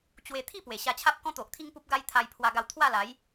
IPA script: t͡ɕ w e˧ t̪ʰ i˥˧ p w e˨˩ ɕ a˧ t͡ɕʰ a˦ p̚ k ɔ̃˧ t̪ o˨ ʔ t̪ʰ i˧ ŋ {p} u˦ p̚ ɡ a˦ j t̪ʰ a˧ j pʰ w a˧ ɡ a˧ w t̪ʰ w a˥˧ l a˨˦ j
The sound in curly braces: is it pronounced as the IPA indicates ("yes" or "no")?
yes